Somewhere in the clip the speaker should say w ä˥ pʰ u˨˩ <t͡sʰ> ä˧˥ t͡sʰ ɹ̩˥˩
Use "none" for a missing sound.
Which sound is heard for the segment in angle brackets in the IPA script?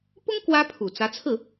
t͡s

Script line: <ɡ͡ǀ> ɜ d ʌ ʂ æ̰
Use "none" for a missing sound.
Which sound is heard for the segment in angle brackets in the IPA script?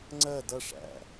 ŋ͡ǀ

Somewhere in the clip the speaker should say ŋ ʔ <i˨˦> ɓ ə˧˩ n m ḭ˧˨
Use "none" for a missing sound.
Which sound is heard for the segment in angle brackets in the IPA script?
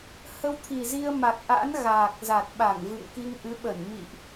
ɨ˨˦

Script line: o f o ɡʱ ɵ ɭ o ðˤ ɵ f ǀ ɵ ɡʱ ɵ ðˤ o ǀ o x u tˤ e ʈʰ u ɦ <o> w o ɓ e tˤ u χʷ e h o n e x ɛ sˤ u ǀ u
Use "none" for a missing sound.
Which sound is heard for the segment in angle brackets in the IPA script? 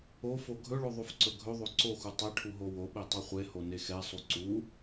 o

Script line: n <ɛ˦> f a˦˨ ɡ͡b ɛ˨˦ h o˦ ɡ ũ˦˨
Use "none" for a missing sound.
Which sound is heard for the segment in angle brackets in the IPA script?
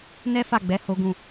ɛ˦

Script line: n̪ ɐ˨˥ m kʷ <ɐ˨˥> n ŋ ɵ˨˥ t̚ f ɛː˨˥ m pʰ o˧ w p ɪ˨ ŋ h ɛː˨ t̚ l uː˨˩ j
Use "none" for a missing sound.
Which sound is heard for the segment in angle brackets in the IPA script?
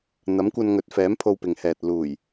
ɐ˧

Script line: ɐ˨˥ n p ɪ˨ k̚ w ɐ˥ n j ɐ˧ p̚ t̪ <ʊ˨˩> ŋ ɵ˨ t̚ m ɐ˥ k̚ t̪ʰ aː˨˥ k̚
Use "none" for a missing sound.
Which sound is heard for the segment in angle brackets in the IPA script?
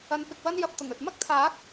ʊ˨˩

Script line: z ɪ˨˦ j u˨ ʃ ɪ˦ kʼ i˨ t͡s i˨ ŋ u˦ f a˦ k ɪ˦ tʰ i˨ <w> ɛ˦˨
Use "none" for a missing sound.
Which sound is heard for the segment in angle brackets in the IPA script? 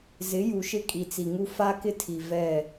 v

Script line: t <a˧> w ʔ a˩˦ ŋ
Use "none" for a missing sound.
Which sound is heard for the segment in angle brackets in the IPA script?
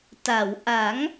a˩˦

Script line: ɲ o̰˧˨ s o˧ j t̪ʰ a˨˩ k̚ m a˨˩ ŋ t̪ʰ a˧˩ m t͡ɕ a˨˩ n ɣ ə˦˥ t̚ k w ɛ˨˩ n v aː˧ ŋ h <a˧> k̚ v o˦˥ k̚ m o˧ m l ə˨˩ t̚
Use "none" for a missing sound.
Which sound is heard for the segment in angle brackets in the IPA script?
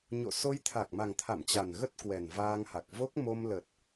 a˨˩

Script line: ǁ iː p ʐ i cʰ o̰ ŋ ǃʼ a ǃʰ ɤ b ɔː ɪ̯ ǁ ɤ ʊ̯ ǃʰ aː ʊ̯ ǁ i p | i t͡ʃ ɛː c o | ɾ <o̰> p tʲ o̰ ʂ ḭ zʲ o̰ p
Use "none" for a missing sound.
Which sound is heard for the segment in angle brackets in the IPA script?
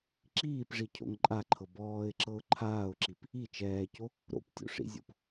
o̰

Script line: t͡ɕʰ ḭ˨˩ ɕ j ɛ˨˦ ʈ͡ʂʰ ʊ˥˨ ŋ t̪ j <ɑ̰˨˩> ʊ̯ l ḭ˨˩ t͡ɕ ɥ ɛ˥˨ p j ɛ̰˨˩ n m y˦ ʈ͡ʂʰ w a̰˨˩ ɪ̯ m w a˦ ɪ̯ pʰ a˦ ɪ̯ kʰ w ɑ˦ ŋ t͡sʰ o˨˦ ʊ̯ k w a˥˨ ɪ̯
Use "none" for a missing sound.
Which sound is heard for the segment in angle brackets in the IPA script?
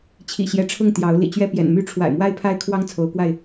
ɑ˨˦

